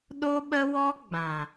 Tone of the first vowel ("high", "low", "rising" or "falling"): high